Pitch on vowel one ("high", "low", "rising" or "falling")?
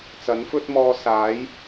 rising